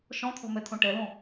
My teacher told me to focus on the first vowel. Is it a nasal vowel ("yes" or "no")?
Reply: yes